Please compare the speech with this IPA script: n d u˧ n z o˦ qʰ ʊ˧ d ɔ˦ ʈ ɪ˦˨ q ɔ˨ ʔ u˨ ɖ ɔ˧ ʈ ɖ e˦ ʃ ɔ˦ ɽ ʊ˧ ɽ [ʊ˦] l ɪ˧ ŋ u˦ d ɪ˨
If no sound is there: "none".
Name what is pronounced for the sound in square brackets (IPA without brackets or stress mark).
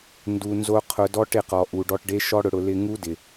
ʊ˧